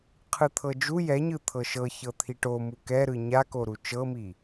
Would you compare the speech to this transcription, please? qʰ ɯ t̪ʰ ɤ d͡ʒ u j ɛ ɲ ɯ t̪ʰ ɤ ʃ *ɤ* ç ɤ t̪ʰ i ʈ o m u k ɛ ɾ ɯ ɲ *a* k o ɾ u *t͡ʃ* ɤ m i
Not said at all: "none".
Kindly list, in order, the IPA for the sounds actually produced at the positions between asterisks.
ɤ, a, t͡ʃ

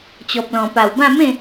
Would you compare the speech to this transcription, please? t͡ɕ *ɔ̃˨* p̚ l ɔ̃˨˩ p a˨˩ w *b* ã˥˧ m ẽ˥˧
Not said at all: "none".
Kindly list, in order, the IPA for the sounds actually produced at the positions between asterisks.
ɔ˨, b

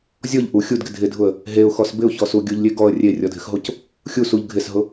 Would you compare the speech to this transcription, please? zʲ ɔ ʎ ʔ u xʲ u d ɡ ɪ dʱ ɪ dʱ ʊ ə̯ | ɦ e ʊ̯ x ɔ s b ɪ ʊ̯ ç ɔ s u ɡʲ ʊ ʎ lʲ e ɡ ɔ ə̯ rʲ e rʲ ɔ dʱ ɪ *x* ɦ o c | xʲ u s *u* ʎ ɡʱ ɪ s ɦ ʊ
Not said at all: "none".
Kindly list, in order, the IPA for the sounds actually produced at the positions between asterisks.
x, u

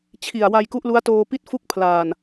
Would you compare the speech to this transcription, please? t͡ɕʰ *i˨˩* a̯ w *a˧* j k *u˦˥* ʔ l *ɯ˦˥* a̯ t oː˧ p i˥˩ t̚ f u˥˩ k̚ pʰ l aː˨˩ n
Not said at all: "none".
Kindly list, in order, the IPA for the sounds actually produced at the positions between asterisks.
i˨˩, a˧, u˦˥, u˦˥

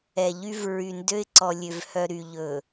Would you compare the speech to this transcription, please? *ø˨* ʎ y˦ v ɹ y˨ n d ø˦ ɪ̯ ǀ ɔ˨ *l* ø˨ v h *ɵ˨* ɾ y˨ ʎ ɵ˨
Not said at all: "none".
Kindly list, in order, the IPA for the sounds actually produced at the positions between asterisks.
ɛ˨, lʲ, œ˨

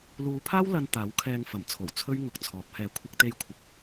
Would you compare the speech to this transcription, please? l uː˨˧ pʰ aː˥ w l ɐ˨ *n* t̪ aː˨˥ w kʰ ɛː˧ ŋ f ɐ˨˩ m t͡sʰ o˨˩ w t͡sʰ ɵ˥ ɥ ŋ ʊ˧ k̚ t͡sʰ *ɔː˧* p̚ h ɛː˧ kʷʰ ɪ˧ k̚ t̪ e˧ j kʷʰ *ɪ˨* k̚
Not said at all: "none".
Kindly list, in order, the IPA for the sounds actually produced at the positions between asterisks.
n, ɔː˨˥, ɪ˨

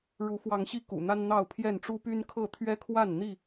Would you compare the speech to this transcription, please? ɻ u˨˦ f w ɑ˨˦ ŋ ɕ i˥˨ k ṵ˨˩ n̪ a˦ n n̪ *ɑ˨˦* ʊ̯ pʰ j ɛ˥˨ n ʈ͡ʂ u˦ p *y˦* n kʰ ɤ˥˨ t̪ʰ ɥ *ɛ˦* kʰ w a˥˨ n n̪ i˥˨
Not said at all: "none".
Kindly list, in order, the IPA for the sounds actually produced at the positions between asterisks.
ɑ˥˨, y˦, ɛ˦

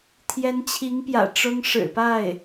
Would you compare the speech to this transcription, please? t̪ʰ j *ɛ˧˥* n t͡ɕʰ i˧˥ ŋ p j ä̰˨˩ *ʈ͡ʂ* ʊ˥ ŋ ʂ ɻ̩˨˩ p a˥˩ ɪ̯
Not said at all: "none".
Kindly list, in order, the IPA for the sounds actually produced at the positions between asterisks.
ɛ˧˥, ʈ͡ʂ

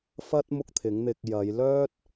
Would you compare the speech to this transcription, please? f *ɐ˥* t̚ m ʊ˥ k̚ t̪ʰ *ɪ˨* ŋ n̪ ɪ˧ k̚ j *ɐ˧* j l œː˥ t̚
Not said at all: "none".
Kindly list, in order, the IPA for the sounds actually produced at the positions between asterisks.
ɐ˥, ɪ˨˥, ɐ˨˧

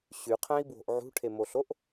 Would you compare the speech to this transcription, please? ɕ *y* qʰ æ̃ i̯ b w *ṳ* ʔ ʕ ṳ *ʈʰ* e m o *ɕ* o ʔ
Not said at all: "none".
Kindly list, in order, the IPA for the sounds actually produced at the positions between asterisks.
y, o̤, ʈʰ, ɬ

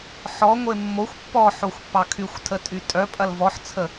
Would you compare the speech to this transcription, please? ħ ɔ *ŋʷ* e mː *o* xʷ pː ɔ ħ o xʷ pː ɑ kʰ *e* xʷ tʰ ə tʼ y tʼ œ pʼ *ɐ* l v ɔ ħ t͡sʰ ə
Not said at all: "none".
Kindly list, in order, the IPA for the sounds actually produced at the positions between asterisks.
ŋʷ, o, y, ɐ

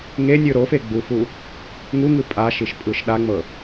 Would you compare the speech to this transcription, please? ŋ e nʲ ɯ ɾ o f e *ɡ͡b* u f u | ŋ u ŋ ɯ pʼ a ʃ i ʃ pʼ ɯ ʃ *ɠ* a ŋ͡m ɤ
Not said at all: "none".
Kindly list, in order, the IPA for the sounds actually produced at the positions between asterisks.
ɡ͡b, ɗ

